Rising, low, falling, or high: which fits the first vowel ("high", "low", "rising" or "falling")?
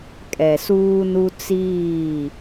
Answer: low